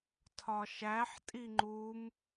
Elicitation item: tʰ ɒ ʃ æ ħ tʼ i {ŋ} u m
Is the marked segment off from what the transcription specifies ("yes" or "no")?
yes